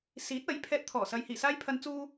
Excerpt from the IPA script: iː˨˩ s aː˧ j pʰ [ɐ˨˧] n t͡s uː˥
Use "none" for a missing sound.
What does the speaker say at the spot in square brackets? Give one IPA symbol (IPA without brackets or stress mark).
ɐ˨˧